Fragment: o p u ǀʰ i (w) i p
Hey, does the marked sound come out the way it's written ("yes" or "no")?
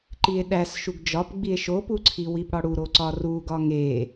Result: yes